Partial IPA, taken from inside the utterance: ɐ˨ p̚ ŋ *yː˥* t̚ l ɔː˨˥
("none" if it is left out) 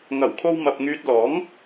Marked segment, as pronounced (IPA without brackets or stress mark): yː˧